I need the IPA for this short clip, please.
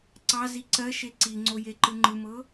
ǀɑzi ǀɜʃe ǀiŋ͡ǀo jeǃɯŋ͡ǃɯmɤ

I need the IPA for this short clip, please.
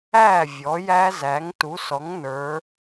æ˥˩ vʲɔ˩˥jæ˦˥zæ˩˥ŋ tu˩˥sɔ˩˥ŋnə˞˩˧

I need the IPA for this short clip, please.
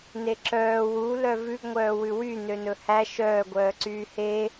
neǁœː wulœ vʉɡŋʷœːwʉ wy nønɵhæ ʃœːɡʷœːǀyː he

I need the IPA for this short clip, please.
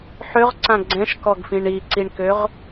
ħøʁǀã ɡ͡ǀɛ̃ʃkɔɡfĩɳ iǀiɳkøʁ

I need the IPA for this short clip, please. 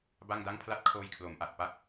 ba˥˩ŋda˥˩ŋ pʰla˦˥t̚kʰoː˧j kʰlo˩˦mʔa˨˩t̚pa˥˩k̚

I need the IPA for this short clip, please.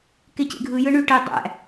kecḛɡʱɯ jɯɳyʈe dˤæ̰

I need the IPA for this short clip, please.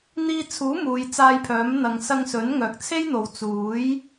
n̪iː˧t͡sʰuː˨˥ muː˨˧jt͡saː˧jpʰœː˨˥mn̪ɐ˨˧ŋ sɐ˧ŋsɵ˨˥nŋœː˨k̚ t͡sʰe˥jn̪o˨w t͡suː˨˥j

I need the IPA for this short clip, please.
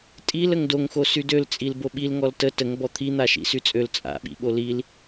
tʼil əŋdoŋxo sydøl t͡sʼilboɓil ŋɔltə təŋ bɔt̪ʰin̪aʃḭ syt͡sʼøl t͡sʼa̰ɓḭ ɓolil

